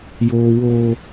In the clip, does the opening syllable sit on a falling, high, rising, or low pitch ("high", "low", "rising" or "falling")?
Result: high